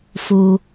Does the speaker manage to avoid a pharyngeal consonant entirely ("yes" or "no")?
yes